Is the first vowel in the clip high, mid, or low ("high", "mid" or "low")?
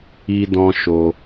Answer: high